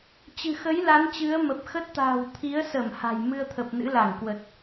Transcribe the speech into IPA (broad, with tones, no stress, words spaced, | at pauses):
t͡ɕɨ̤˨˩xə˨˦j la˨˦nt͡ɕɨ˨˦ə̯ mə˨˩p̚xə˦˥t̚t̪a̤ː˨˩w t̪ʰi˨˦ə̯sə˧˩m ha̤˨˩jmɨ˧ə̯t̪ʰə˨˩p̚ nɨ̰˧˥la˧˩ŋkwə˨˩t̚